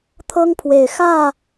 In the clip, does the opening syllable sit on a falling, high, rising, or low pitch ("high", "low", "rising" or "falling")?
high